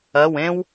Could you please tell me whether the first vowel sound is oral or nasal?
oral